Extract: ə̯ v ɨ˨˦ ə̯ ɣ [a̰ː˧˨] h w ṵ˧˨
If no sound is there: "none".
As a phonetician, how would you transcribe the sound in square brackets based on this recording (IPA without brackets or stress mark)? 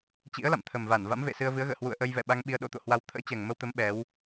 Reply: ə̰ː˧˨